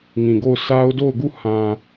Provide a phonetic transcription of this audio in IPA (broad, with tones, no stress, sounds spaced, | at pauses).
ŋ ĩ˨ ɡ o˦˨ ʊ̯ s a˦ ʊ̯ d o˦˨ ʊ̯ ɡ u˦˨ h ã˨